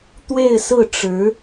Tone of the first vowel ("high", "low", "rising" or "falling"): falling